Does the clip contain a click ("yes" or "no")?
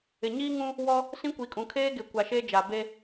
no